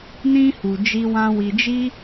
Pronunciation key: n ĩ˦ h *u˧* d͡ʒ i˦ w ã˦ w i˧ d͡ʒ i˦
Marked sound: correct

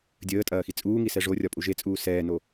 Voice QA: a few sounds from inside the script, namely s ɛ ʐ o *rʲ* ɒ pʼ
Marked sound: correct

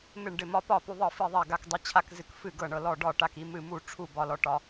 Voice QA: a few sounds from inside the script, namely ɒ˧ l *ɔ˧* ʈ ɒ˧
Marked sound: correct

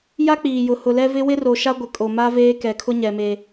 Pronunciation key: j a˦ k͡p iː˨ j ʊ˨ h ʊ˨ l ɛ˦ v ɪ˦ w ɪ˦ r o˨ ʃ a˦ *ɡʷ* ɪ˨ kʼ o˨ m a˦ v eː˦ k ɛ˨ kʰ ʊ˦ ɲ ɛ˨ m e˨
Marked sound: correct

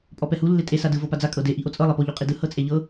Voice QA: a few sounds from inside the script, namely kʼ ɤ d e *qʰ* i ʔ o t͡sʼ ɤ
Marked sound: incorrect: ʔ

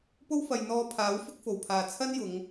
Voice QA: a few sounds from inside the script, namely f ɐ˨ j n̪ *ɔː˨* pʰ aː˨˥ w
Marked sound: incorrect: ɔː˧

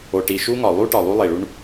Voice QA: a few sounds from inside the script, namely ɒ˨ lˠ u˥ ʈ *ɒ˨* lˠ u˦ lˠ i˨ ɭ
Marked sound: correct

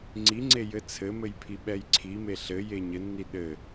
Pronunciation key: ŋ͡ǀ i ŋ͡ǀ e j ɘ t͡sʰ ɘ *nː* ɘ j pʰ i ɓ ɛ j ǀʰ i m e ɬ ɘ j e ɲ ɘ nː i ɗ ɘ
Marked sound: incorrect: m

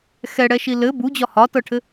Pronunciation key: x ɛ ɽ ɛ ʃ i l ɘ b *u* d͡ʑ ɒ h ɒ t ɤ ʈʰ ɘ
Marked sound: correct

